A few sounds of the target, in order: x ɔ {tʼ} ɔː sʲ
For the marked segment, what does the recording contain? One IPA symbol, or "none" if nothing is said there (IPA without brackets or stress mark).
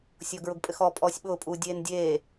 pʼ